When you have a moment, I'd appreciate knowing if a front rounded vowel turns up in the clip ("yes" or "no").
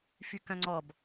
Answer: yes